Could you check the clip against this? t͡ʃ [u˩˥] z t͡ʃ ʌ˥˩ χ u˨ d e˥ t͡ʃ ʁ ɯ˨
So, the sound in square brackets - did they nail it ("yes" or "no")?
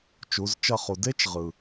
yes